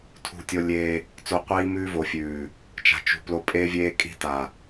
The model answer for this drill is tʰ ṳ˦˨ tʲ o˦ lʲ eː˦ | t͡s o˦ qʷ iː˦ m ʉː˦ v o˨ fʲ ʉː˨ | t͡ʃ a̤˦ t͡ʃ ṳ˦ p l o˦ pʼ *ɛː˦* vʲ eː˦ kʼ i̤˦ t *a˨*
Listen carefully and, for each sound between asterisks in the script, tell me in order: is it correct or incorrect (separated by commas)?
incorrect, correct